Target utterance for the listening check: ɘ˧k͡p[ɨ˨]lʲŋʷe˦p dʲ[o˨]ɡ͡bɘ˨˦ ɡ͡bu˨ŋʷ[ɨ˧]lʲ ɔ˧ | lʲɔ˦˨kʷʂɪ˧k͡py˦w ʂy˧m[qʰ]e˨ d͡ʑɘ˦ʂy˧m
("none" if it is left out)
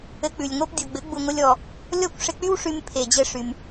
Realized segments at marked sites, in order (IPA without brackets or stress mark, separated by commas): ʉ˨, o˨, ɪ˧, pʰ